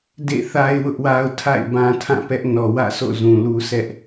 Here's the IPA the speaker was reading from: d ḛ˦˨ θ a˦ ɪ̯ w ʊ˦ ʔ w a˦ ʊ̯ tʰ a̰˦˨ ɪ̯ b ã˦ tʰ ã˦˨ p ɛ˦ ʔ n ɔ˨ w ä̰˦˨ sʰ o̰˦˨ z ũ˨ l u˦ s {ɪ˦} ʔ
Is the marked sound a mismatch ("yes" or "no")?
yes